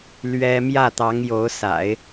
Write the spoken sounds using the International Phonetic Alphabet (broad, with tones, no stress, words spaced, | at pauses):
lɥɛ˥ mjä˥˩t̪ɑ˧˥ŋ jo˧˥ʊ̯sa̰˨˩˦ɪ̯